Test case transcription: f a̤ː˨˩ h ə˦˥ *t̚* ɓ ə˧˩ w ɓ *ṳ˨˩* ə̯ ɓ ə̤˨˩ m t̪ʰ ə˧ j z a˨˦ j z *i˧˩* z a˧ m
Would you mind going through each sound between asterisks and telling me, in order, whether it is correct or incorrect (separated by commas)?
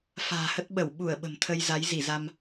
correct, incorrect, correct